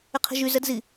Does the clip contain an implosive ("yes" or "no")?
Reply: no